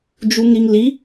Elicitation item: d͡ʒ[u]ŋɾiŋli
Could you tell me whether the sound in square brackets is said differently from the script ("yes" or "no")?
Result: no